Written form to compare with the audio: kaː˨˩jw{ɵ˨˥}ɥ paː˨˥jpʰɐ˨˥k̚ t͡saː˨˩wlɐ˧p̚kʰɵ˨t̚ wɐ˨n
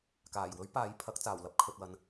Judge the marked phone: correct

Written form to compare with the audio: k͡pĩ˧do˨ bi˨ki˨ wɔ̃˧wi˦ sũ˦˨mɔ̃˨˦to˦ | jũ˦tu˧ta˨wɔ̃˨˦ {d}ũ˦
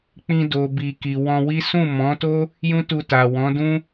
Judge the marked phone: correct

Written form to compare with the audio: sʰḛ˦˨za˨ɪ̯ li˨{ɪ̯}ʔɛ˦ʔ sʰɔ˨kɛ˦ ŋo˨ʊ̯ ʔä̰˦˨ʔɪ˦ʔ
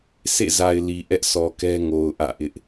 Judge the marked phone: incorrect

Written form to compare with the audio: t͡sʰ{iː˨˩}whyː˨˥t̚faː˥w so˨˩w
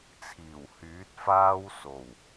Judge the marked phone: correct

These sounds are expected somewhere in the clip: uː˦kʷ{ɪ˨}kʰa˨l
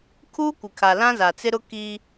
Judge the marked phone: correct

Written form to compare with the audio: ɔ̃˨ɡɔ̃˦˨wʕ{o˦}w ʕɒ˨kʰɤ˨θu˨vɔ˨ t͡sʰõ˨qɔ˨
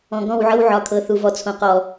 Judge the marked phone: incorrect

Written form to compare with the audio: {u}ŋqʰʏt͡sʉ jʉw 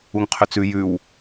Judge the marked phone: correct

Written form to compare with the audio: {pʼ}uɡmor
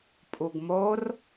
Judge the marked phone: correct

